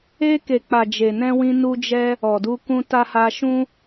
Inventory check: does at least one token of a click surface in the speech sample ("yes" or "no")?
no